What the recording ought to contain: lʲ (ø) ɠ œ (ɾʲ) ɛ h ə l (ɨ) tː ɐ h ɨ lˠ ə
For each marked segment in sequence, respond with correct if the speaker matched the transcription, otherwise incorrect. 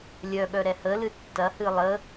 incorrect: œ, incorrect: ɾ, correct

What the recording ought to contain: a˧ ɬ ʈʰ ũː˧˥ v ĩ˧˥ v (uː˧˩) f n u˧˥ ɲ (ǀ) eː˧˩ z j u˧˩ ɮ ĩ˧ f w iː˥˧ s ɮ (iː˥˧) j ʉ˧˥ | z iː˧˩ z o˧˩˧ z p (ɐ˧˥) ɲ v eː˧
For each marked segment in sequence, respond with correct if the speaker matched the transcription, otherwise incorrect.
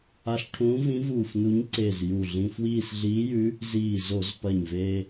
correct, correct, incorrect: iː˧˥, incorrect: ɐ˧˩

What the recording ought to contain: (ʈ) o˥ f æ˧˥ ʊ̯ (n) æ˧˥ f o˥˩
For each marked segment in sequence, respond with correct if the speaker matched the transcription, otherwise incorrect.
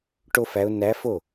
correct, correct

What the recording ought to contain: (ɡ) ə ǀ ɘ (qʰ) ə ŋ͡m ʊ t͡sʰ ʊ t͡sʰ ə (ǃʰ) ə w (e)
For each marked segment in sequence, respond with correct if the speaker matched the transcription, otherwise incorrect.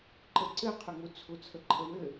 incorrect: ǃ, correct, correct, incorrect: ɘ

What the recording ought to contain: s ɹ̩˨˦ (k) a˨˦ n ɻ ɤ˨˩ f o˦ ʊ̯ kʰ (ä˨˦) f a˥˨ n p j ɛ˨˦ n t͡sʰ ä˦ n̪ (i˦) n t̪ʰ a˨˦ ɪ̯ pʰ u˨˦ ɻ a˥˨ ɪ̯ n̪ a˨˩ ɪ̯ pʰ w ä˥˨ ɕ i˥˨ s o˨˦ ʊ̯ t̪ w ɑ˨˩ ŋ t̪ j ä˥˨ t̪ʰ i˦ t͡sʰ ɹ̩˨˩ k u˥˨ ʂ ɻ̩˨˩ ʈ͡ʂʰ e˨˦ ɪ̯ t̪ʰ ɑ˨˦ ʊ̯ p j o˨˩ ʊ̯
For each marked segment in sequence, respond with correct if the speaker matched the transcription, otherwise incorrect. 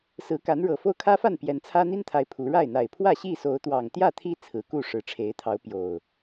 correct, incorrect: ä˦, correct

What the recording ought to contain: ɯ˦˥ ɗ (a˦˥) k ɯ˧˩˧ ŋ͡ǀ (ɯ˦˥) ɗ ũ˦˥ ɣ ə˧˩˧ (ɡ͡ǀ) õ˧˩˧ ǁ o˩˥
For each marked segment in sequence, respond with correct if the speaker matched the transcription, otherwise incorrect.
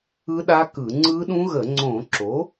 correct, correct, incorrect: ŋ͡ǀ

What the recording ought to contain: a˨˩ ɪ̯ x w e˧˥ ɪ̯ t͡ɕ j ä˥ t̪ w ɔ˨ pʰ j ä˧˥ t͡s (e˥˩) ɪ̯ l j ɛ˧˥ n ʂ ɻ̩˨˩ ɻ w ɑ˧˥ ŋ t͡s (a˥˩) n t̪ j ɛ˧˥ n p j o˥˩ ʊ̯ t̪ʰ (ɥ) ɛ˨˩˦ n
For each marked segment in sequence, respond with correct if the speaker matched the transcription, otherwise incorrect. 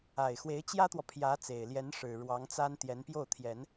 incorrect: e˨˩, incorrect: a˥, incorrect: j

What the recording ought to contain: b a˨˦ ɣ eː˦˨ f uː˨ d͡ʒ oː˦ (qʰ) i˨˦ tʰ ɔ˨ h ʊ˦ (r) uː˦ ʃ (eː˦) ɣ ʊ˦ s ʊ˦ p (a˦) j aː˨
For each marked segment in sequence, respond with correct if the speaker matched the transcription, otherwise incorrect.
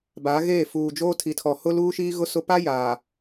incorrect: tʰ, incorrect: l, incorrect: iː˦, correct

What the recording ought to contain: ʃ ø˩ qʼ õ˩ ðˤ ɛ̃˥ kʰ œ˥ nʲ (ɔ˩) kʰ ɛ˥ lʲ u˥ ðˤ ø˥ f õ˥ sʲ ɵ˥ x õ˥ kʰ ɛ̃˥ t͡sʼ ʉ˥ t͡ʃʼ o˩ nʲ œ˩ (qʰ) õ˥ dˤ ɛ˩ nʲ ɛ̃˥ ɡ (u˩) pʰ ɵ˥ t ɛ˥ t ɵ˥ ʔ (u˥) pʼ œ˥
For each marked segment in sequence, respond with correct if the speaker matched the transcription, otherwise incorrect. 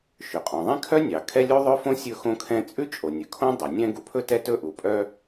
incorrect: ɑ˩, incorrect: kʰ, correct, incorrect: u˩

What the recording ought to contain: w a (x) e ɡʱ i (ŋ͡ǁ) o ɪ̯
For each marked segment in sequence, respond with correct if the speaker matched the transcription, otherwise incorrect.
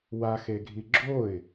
correct, incorrect: ɡ͡ǁ

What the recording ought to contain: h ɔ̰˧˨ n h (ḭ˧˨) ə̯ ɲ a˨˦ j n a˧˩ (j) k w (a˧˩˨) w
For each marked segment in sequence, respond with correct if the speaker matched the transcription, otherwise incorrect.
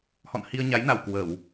incorrect: i˧, incorrect: w, incorrect: ə˧˩˨

